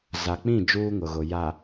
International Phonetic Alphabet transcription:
z a˨ k͡p ĩ˦˨ d͡ʒ uː˦ ŋ ʊ˨ ɣ ʊ˨ j a˨

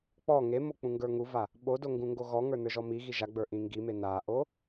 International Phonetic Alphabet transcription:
k͡p ɔ ŋ e m o k͡p ũ ŋ ɡ ə˞ ŋ u v a | ɓ o d o ŋ ɡ ũ ŋ ɡ o ɣ ɔ ŋ ə˞ n ə˞ ʒ ɔ m i ɣ i ʒ a ɡ͡b ə˞ ʔ ĩ ŋ ɡ i m e n a ʔ o

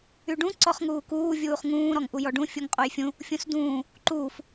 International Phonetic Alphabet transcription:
y ɖ ũ ǀ ɔ χ ŋ uː k uː vʲ uː χ ŋ ũː ɾ ɔ ŋ ʔ u j ɔ ɖ ũ fʲ u ŋ qʼ o j fʲ ũ | fʲ ũ s d ũː | ǃ uː f

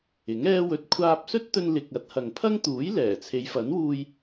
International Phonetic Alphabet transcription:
ɪ˨˥ ŋ ɛː˥ w ɵ˧ t̚ kʷʰ aː˧ p̚ s ɵ˥ t̚ t̪ ɵ˧ n l ɪ˨ k̚ ɐ˨˥ t̚ h ɐ˨ ŋ pʰ ɐ˥ ŋ t̪ uː˨˥ j l ɛː˨˩ t͡sʰ e˨˧ j f ɐ˨˥ n w uː˧ j

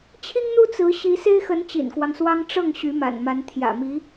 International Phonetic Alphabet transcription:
t͡ɕʰ i˥ ŋ n̪ u˥ t͡s ɹ̩˧˥ ɕ i˧˥ s e˥ ɪ̯ x ə˧˥ n t͡ɕ ḭ˨˩ n k w ɑ˦ ŋ s w ɑ˥ ŋ ʈ͡ʂ ɤ˥˩ ŋ ɕ y˧˥ m a̰˨˩ n m a˧˥ n t̪ʰ j ä̰˨˩ m i˧˥

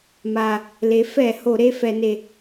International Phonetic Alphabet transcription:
m a˨˩ | l e˩˧ f ɛ˧˩˧ h o˧˩˧ ɾ e˧˥˧ f ɛ˧˩˧ n e˨˩

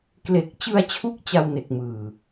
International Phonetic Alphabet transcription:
k l e˨˩ k̚ t͡ɕ ɯ˧ a̯ t͡ɕʰ u˦˥ k̚ t͡ɕ a˧ w n e˨˩ k̚ m ɯː˨˩

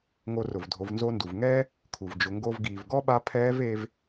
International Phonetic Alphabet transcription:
ŋ o˧ r ʊ˩ v dʱ o˩˧ v n z o˧ n d u˩ v ŋ ɛː˥ | kʰ u˩ v d͡ʒ ʊ˩˧ ŋ ɡ o˧ v ɡ iː˩ v ɡ ɔ˥ ɓ a˧˥ pʰ ɛː˧˥ v e˧ v

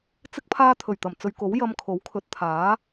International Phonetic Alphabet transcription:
t͡s ɪ˥ k̚ pʰ aː˥ t̪ʰ ɵ˨˩ ɥ t̪ ɐ˨˩ m t͡s ɵ˨ ɥ k o˨˥ w j ɐ˧ m kʰ o˨˥ w kʰ ɵ˨˥ t̚ t̪ʰ aː˨˥

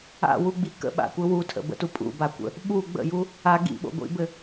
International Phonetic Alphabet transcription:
a̰ w u ɡ͡b i k ə̰ ɓ a̰ kʷ ɘ w u tʰ ə̰ b ə̰ t u pʼ ṵ b a kʷ ə̰ | ɓ u ɡ͡b ə̰ j u | a ɡ ḭ ɓ o̰ ɡʷ ḭ b ɘ

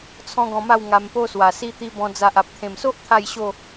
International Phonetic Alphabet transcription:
t͡sʰ ɔ̃˦ ɡ ɔ̃˧ m a˥˧ w ŋ a˧ m p o˦ s w a˨˩ s i˦ t̪ i˦ b ɔ̃˧ d͡z a˨ ʔ a˨ p̚ t̪ʰ ẽ˨˩ m s o˦ ʔ t̪ʰ a˥˧ j ɕ o˥˧

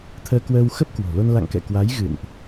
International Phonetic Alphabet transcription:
t̪ʰ əː˧ k w əː˧ w x ə˦˥ p̚ k w o̤˨˩ l o˧ n l a̰˧˨ ŋ k ɛ̰˧˨ k w a˨˦ j ɣ ɨ̰˧˨ n ʔ

